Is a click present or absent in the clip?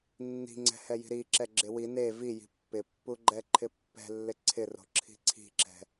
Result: present